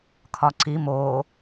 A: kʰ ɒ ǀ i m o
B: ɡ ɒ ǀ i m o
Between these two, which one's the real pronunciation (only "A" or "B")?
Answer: A